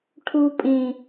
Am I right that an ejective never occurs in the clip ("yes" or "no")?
no